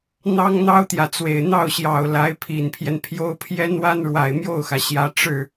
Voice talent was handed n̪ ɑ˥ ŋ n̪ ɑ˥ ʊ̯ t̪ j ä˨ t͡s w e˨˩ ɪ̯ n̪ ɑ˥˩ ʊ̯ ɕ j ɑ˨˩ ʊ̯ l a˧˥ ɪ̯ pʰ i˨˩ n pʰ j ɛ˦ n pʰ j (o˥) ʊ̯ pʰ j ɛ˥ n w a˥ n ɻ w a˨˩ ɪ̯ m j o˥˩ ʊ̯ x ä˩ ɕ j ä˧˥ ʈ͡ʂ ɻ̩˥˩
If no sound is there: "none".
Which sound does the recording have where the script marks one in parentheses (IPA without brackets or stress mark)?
o˥